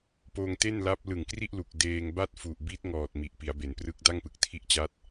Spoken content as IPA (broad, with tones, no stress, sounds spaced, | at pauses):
p oː˧ ŋ t e˥˩ n l a˦˥ p̚ l ɯ˨˩ ŋ k r i˥˩ ʔ l u˨˩ k̚ d eː˧ ŋ b a˥˩ t̚ f u˨˩ ʔ b i˦˥ t̚ ŋ ɔː˨˩ t̚ m i˨˩ ʔ p i˩˦ a̯ b e˩˦ n p r ɯ˦˥ k̚ d a˥˩ ŋ p ɯ˨˩ k̚ tʰ i˦˥ ʔ t͡ɕ a˦˥ t̚